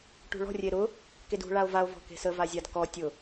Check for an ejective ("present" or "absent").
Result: absent